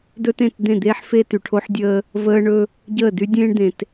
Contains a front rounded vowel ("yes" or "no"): yes